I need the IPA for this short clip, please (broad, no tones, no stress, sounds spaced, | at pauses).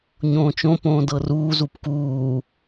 ɲ õː t͡ʃ õ p õː d ɤ r uː z u p k uː